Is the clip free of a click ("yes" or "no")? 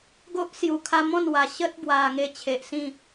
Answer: yes